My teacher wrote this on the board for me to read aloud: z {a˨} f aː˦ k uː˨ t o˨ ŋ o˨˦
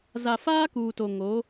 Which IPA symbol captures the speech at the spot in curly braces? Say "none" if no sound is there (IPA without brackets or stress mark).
a˨